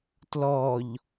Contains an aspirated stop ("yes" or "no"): no